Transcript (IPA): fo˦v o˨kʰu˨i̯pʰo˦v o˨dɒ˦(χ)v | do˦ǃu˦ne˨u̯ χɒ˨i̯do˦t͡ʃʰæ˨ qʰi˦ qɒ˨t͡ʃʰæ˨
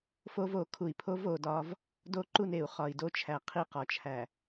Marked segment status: incorrect: none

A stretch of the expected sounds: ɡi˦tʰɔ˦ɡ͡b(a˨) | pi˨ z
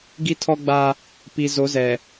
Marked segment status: incorrect: a˦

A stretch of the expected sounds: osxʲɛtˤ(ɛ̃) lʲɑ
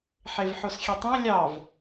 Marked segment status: correct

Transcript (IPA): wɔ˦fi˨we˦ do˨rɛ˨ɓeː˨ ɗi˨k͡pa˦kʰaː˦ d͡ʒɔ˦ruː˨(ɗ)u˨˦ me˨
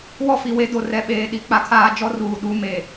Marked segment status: correct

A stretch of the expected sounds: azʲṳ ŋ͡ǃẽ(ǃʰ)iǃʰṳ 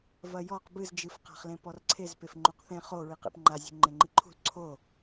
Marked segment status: incorrect: ŋ͡ǃ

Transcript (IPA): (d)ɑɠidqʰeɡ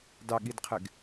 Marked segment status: correct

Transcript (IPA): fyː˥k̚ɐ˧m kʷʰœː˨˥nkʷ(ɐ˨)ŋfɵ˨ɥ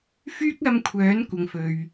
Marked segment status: correct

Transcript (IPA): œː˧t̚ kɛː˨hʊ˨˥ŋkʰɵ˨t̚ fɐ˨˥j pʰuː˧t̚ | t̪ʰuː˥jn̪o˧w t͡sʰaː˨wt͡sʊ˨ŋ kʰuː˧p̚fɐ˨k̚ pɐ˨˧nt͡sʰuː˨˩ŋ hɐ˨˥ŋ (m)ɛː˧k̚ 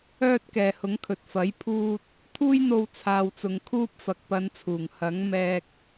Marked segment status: correct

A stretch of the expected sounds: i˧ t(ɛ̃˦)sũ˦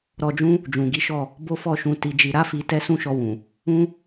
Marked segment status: incorrect: ɛ˦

